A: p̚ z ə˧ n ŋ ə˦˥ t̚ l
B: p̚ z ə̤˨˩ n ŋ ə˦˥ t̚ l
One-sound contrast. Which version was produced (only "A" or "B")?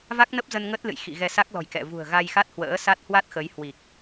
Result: A